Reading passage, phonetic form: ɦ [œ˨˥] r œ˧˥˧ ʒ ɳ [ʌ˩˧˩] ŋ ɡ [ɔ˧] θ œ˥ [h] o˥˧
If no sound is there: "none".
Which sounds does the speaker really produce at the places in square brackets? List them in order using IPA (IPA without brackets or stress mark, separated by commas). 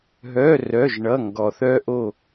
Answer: œ˧˥˧, ʌ˧˥˧, ɔ˧, ʔ